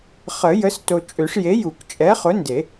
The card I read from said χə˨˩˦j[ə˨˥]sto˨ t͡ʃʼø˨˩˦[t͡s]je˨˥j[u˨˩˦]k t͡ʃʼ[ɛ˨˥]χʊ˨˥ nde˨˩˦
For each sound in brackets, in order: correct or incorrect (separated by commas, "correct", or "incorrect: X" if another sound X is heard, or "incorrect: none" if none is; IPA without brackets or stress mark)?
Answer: correct, incorrect: ʂ, correct, correct